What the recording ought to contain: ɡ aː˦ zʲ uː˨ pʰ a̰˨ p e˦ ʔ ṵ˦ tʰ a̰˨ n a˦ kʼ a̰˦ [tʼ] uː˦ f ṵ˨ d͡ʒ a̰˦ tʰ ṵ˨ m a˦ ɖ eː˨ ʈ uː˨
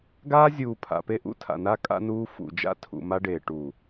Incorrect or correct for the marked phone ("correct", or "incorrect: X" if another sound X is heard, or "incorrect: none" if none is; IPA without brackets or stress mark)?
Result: incorrect: n